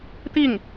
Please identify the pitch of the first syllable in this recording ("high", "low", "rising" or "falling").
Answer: falling